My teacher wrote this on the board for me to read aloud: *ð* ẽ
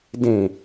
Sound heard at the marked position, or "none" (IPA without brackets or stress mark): d